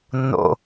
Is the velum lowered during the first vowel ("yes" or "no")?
no